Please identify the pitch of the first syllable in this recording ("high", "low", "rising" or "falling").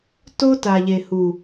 high